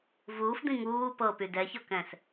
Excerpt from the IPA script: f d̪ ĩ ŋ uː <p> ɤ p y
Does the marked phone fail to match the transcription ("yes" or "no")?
no